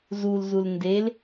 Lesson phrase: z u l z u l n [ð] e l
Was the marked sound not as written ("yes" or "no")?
yes